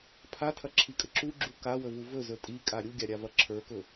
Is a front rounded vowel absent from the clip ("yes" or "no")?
yes